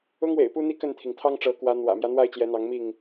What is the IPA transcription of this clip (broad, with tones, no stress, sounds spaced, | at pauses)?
ʊ˦ ŋ w ḛ˨˩ ɪ̯ p u˦ n̪ i˥˨ k ə˥˨ n t̪ʰ i˩ ŋ t̪ʰ ɑ˦ ŋ ʈ͡ʂ ɤ˨˦ k w ä˨˦ n̪ w ä̰˨˩ m j ä˦ n̪ w a˥˨ ɪ̯ t͡ɕ j ɛ˨˦ n̪ ɑ˨˦ ŋ m i˥˨ ŋ